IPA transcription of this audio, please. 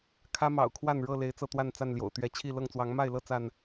kʰä˦mɑ̰˨˩ʊ̯kʰwa˥˨n ɻɤ˥˨le˨˦ɪ̯ t͡sɤ˥˨t̪wa˥˨nt͡sa˥˨nljo̰˨˩ʊ̯ t̪ɥɛ˨˦t͡ɕʰi˥˨ lɤ˥˨ŋt͡swɑ˨˦ŋ ma˥˨ɪ̯lɤ˥˨ t͡sa˥˨n

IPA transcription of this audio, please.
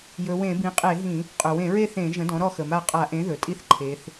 jɵ˩˧wẽ˧˩˧ bĩ˩˥qʼe˧˩˧ɦĩ˧˩˧ | qʼɵ˩wẽ˧˩˧ɹe˥˨ θẽ˧˩˧ʒə̃˩˥ dɔ̃˩˥ɾɔ˥˨xə˩ma˥˨ qʼa˧˩˧ ʔẽ˩˥ ðɵ˩tʼi˥˨θ ǃʰe˩˧θ

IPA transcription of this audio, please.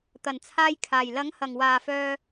t̪ɐ˨˩nt͡sʰaː˧jkʰaː˨˩j lɐ˨˥ŋhɐ˨˩ŋwaː˨˩fœː˨

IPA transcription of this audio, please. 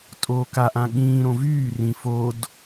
tʼoːkaʔã ɠĩːɾõ vyː rĩ fod

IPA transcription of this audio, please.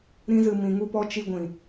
ɾĩ˦zɨ˧ mĩ˨ŋu˧pɔ˧ t͡ʃi˧ɡʷĩ˨

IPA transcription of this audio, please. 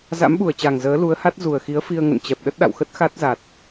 za̰˧˥mɓu˨˩ə̯t͡ɕa˨˩ŋ zəː˨˦lu˨˦ə̯ha˦˥t̚ zu˨˩ə̯ xi˨˦ə̯fi˧ə̯ŋə̰˧˨nt͡ɕɛ˨˩p̚ ɗə˦˥t̚ɗa̰˧˨wxə˦˥t̚ xa˦˥t̚za˨˩t̚

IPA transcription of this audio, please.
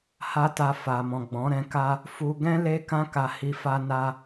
ha˦ta˧fa˨mɔ̃˨ ɡ͡bɔ̃˨˦ɾɛ̃˧ka˦ | fu˧ ɡɛ̃˦ le˦kã˦ ka˧hi˧fa˦ na˧

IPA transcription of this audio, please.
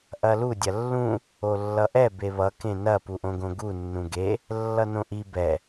ʔɐlu dʲɐlːũ | olːʌʔɛ beβʌ kẽnɐ puʔõɡõɡu nːũɡe | lːʌnõʔi bɛ

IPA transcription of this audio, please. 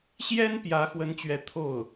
ɕjɛ˥n pjä˧˥xwə˧˥nt͡ɕɥɛ˧˥ t̪ʰo˥˩ʊ̯

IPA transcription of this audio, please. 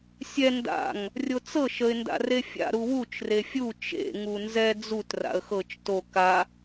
sʲɛ nda̰ŋ | rʲot͡sɤʃ əɪ̯ nda̰refʲa̰ ɾuwut͡ʃ refʲu t͡ʃḛ ŋunzɛ d͡zut ra̰ə̯xɤt͡ʃ to ka

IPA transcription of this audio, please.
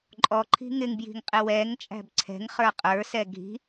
ǃʼɔǃʰi̤ ŋɪŋbji̤ŋqʼɪ wɛŋt͡ʃʼæ̤b ǀʰɛ̤ŋχə˞ qʼə˞sɛ ɡʱi̤

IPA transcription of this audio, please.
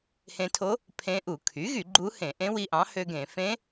hẽ˧tʰo˧˥ | pʰẽ˧˥ʔu˧˩˧ kʰy˩˥ɣy˧˩˧ ɡ͡ǃu˧˥hẽ˧˩˧ʔẽ˧˥ wi˧ʔɑ̃˩˥hø˧ ɡẽ˧˩˧ fẽ˧˥

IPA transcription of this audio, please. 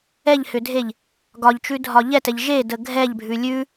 ɛʎhʏdʱeʎ | ɡɒʎt͡ʃʉdʱɒ ʎɛtɛʎ ʒedə ɡʱɛʎbʱʉ lʲʉ

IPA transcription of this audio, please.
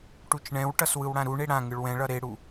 ʈut͡ʃɳɛ̃wʈʌs wɯwɽãɾuɳe ɽãŋɯɭ wɛ̃ɭʌ ɾeɽu

